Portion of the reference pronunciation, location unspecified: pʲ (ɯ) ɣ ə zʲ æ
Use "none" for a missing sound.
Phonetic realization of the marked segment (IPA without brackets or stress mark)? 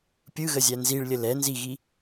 ɯ